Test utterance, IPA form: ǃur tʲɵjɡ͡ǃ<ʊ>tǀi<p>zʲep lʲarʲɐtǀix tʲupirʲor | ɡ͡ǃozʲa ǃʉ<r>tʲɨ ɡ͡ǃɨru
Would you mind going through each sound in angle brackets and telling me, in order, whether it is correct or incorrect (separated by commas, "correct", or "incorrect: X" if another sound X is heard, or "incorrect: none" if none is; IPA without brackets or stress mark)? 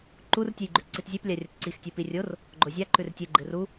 incorrect: ʉ, incorrect: t, correct